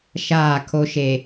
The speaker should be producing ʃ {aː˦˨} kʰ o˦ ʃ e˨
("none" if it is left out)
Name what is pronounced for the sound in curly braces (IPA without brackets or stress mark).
aː˦˨